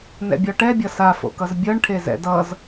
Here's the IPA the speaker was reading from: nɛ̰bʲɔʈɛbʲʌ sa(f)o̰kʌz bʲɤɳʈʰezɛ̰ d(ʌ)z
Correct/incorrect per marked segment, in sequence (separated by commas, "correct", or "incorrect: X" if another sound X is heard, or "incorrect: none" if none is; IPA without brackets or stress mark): correct, correct